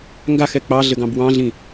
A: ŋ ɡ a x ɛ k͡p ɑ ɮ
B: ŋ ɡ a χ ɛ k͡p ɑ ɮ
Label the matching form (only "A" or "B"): A